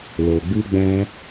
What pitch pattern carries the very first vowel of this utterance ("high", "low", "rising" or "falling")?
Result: low